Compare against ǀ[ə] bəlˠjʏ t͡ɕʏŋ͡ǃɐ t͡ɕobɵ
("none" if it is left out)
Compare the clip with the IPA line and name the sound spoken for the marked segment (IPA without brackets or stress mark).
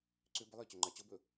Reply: ʏ